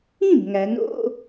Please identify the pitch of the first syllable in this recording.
falling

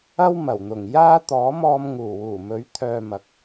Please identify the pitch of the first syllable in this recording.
high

